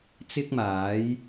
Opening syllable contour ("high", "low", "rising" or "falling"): high